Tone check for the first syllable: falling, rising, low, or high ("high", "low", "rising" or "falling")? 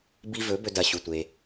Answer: high